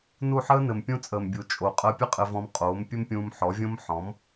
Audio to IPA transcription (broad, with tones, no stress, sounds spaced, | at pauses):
n u˦˨ ħ əː˦ n ɘ˨ m pʲ ũ˧ t͡sʼ əː˨ m bʲ u˨ t͡ʃʼ o˨ qʼ əː˧ pʲ ɘ˦ qʼ ɘ˧ v ɔ̃˧ m qʼ oː˨˦ m pʲ ɘ˦ m pʲ ũː˧ m ħ ɔ˨˦ vʲ õ˦ m ħ ɔ̃˨˦ m